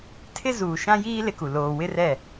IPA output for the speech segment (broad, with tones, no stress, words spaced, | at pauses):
tʰɪ˦zuː˨ʃã˦ jiː˦ lɪ˦ku˨ loː˨wɪ˦rɛ˦˨